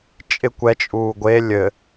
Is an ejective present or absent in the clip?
present